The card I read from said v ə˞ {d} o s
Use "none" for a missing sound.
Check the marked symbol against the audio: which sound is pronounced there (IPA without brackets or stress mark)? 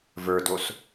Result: d